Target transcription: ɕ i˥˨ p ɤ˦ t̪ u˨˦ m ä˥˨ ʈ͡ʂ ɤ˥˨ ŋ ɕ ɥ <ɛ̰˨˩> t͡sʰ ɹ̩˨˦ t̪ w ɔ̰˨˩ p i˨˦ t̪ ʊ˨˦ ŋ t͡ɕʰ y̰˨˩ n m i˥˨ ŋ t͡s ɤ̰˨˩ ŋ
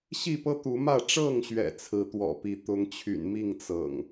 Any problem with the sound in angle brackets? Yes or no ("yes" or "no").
no